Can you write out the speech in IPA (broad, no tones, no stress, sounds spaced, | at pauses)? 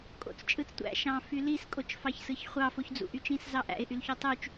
kʼ o̰ t͡s t͡ʃʼ ɯ t͡s tʷ æ̰ ʃ ɑ̃ f y l i s kʼ o t͡ʃ f ɑ ç s ɯ ç χʷ ɑ f o ç d͡z ṵ ʔ y t͡ʃ ĩ s z ɑ ʔ æ̰ ɪ̯ ʔ y l ç o tˤ y t͡ʃ